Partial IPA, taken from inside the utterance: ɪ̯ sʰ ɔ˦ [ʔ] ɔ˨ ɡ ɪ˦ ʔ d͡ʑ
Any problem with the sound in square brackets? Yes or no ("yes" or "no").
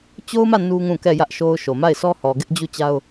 yes